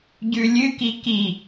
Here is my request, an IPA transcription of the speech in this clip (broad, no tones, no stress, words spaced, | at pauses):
ɟʉlʲɨki ki